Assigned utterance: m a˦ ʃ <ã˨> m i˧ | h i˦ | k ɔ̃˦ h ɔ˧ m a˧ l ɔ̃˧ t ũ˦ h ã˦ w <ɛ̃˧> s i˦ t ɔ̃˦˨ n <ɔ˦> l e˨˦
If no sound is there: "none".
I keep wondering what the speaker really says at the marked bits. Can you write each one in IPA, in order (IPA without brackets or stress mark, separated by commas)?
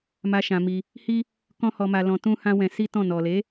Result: ã˧, ɛ̃˧, ɔ˨